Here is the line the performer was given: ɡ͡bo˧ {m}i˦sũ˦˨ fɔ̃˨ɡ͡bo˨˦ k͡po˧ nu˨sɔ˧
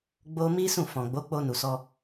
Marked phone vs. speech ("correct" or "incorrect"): correct